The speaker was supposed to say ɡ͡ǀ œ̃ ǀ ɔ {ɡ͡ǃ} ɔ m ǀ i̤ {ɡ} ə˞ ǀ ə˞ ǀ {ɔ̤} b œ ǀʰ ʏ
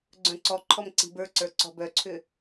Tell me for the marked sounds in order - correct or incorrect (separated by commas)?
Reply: incorrect, incorrect, correct